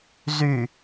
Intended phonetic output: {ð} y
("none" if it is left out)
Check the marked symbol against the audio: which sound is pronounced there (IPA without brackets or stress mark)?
z